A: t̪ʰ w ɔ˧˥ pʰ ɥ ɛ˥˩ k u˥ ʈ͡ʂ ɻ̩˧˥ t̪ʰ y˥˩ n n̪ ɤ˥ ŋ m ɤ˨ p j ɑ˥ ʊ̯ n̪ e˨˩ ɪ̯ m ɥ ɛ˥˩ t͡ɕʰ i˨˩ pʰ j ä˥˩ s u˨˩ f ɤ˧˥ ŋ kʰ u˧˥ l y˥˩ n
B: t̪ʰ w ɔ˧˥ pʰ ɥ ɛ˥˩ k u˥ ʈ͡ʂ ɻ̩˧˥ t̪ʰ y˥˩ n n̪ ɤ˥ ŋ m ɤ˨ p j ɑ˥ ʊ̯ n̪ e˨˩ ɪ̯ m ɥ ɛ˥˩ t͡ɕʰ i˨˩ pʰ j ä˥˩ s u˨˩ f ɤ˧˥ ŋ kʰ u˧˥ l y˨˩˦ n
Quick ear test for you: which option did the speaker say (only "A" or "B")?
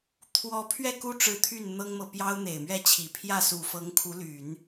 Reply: B